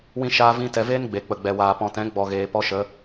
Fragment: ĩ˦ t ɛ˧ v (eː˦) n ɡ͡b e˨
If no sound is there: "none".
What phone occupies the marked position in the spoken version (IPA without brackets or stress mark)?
eː˦